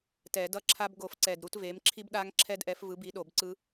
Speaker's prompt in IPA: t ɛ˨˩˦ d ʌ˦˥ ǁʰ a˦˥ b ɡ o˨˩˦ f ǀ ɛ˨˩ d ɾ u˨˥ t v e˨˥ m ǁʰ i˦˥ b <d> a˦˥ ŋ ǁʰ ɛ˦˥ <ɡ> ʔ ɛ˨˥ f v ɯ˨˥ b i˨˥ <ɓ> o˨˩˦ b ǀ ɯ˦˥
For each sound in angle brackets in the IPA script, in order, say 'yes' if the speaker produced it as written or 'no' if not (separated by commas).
no, no, no